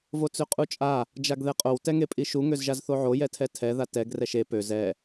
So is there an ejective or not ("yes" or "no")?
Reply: yes